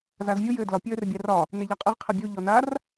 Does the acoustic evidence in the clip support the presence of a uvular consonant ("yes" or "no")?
yes